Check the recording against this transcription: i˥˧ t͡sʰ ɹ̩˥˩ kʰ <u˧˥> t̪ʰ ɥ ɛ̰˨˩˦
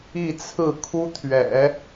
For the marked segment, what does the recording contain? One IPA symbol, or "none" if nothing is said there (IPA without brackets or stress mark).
u˥